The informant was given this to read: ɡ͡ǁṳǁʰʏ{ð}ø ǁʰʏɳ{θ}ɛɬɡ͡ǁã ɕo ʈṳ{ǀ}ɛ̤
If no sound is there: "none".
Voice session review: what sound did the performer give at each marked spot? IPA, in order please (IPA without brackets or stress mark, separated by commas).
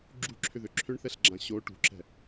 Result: ð, θ, ǁ